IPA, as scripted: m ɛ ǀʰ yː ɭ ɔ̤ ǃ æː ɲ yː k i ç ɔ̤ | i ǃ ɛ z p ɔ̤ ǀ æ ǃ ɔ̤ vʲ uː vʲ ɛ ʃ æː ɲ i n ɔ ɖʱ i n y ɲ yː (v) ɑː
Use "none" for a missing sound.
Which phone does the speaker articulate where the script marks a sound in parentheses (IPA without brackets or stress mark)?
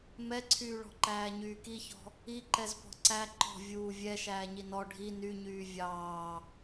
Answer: vʲ